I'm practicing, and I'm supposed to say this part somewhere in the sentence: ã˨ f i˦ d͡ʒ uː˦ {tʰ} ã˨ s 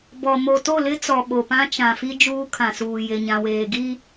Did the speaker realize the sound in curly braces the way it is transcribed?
no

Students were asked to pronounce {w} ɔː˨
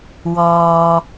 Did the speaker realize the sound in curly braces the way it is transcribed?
yes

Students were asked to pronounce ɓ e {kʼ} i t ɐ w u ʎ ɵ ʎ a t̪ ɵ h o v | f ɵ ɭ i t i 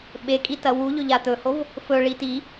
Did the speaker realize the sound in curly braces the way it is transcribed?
yes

